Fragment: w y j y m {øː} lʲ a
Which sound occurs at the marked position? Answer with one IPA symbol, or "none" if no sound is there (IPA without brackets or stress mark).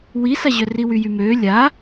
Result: øː